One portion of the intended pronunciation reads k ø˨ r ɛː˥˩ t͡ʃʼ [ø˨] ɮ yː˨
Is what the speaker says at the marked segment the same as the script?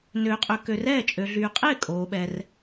yes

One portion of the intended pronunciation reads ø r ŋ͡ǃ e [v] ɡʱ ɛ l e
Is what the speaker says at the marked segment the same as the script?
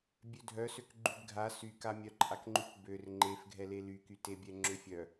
no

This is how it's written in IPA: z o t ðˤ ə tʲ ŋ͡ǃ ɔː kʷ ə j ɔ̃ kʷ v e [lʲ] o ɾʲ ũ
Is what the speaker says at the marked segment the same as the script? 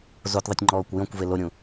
no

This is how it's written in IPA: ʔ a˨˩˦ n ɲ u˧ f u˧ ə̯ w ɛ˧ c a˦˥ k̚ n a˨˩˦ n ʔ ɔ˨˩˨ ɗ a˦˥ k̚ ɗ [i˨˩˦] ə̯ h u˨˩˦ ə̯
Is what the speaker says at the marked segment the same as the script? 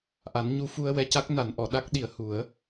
yes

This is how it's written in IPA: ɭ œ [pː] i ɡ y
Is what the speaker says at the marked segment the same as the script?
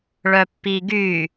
yes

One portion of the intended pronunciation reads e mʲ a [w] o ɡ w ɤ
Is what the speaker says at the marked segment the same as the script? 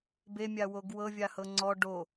yes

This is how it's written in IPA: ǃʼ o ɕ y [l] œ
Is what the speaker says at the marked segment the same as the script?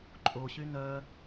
no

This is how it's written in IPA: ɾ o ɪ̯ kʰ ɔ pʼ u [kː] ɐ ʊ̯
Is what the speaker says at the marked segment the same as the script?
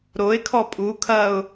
no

